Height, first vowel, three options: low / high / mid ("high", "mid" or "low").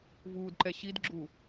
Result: high